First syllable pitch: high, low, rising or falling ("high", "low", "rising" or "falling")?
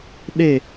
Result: falling